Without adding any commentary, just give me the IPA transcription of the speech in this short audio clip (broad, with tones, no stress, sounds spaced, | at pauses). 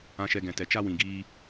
ã˨ ʃ ɛ˨ ɡ ɛ̃˨ t ɛ˨ t͡ʃ a˧ w ĩ˨ ɡ iː˧